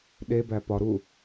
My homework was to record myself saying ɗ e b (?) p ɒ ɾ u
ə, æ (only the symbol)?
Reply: æ